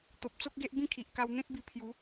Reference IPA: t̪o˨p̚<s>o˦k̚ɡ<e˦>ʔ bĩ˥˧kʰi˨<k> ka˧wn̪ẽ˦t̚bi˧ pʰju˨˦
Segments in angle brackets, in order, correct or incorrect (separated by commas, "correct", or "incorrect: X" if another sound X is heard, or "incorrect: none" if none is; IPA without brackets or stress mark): incorrect: t͡s, correct, incorrect: ʔ